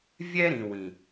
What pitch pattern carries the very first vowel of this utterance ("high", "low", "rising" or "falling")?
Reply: high